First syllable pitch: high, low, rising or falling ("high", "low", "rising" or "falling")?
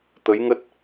rising